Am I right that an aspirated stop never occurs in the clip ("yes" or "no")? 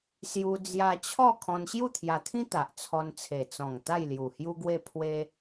no